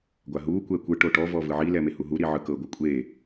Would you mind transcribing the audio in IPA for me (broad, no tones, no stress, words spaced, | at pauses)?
ɡʷaɦuː kʷɛkʷɯ ʈoʈɔ vɔvɯʕi lɛmehuɦu ɾiʕɯkɤ ɡʷɯkʷʼeː